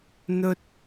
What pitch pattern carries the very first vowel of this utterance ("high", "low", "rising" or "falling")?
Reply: high